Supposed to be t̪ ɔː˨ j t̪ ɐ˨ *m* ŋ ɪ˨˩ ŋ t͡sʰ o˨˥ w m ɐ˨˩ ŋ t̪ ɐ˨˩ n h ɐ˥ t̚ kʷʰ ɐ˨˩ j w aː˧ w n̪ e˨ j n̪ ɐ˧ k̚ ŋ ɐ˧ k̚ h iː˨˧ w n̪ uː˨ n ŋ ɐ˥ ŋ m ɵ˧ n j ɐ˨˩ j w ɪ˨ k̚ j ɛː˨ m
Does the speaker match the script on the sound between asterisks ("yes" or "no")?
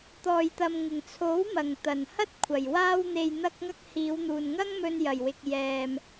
yes